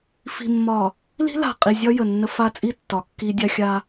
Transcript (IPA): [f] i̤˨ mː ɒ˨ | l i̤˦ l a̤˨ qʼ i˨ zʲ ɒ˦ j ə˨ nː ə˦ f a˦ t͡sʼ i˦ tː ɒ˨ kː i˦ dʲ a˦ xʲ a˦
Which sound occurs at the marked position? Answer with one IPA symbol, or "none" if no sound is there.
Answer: f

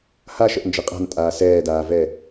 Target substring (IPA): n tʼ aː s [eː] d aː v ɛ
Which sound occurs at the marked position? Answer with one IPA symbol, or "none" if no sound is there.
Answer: ɛː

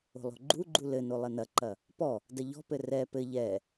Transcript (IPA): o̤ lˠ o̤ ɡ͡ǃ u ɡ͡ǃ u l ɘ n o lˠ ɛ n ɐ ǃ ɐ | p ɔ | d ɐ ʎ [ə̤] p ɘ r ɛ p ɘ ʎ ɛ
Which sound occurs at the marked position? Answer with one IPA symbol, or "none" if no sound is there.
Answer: ɔ̤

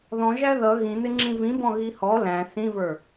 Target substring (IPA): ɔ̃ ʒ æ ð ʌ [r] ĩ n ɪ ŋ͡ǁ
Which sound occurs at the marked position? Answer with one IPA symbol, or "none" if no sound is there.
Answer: ɣ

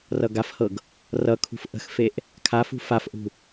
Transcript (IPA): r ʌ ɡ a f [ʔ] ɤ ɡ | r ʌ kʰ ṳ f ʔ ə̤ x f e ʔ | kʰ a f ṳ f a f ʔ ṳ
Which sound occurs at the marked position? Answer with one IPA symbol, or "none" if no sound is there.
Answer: h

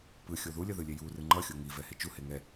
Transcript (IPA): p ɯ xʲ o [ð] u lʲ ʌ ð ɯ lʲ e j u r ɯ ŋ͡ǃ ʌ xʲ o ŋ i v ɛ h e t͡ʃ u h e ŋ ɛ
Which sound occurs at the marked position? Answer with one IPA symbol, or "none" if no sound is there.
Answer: ð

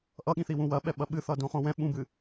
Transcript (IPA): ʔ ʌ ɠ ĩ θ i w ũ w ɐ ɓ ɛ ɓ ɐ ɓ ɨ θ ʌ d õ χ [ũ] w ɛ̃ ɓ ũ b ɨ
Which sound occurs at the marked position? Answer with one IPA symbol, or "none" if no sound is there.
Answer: õ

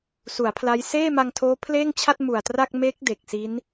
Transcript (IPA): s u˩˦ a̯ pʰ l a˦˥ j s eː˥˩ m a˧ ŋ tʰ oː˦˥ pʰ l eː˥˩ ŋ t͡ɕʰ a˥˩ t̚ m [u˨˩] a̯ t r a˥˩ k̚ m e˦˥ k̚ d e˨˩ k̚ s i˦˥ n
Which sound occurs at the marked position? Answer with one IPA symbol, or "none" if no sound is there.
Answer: u˨˩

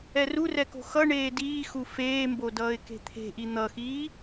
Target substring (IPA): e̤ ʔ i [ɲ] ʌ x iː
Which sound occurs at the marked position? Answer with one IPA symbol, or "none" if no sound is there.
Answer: n̪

